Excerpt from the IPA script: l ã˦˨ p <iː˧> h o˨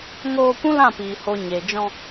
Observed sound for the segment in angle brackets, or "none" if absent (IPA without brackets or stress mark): iː˨